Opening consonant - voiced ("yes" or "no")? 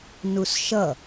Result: yes